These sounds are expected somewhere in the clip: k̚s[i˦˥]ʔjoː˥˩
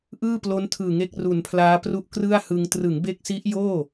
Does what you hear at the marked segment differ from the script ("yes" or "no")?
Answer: no